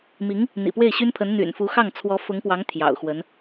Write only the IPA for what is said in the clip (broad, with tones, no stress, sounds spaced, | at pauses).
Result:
m i˧˥ ŋ | n̪ ḭ˨˩ p w e˥˩ ɪ̯ ɕ y˥ n pʰ ə˧˥ n n̪ y̰˨˩ n f u˧˥ x ɑ˥˩ ŋ t͡sʰ w ɔ˧˥ f ʊ˧˥ ŋ p w ɑ˧˥ ŋ t̪ʰ j ɑ̰˨˩ ʊ̯ x w ə˧˥ n